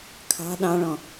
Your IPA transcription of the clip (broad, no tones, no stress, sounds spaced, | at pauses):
kʰ ɑ̤ ɗ ɑ̃ ɭ ɔ̃